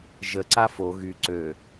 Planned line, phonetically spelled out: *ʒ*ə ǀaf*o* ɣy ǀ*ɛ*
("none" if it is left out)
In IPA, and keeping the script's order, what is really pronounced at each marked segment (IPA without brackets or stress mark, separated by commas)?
ʒ, o, ø